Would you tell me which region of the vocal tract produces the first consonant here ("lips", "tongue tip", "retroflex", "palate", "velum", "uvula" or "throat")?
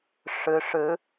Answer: retroflex